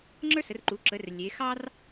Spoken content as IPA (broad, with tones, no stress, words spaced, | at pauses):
ŋ͡ǁə˞˥sə˩˧rǃu˩˧ ǁə˩˧r lʲe˩˧xɑ˥r